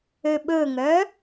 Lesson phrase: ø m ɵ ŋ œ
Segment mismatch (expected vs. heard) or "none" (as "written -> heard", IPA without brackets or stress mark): m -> ɓ